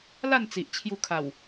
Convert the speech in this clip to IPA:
l a˥˧ n t͡s i˨ ʔ t͡ɕʰ j u˧ kʰ a˨˩ w

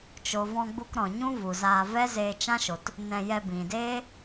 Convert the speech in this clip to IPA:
t͡ʃ o˨ v ɔ̃˧ ɡ͡b u˧ k ɾ ɔ̃˨ ɲ ũ˦ v u˨ z aː˧ v ɛ˦ z eː˧ t͡ʃ ã˦ ʃ o˨ t | n ɛ̃˧ j ɛ˧ b ĩ˨ d eː˦

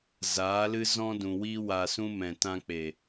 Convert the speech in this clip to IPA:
z aː˨˦ l ɨ˦ z ɔ̃˦ d ũ˨ w iː˦ w a˧ s ũ˦ m ɛ̃˨ t ã˧ k͡p e˨

